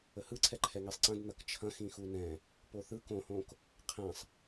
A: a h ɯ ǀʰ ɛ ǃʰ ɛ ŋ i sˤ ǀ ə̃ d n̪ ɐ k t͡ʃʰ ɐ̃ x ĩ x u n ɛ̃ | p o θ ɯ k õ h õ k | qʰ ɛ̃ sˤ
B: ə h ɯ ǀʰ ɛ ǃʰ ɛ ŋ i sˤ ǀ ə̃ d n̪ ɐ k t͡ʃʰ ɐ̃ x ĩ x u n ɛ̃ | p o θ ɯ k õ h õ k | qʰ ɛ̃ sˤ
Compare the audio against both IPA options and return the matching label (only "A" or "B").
B